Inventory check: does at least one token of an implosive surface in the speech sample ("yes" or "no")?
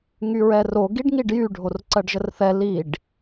no